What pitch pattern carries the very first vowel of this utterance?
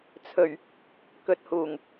low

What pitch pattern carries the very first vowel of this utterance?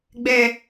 low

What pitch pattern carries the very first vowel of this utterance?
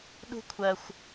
high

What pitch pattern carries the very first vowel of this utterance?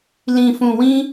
low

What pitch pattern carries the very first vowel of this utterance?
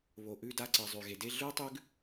low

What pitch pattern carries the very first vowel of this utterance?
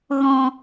low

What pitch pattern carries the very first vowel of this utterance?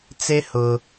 high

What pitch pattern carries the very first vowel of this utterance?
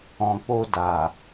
low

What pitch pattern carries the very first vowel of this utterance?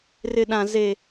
high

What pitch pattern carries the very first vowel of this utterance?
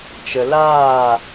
low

